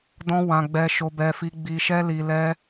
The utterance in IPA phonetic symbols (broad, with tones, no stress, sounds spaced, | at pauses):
d ɔ̃˦ w ã˧ ɡ͡b ɛ˧ ʃ o˧ b ɛ˧ f i˧ ɡ͡b i˧ ʃ ɛ˦ l i˧ l ɛ˦